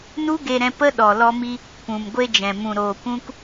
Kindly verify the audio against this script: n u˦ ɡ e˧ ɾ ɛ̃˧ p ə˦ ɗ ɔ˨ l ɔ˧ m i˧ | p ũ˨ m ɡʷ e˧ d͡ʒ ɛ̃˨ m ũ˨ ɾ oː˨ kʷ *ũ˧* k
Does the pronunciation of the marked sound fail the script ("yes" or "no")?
no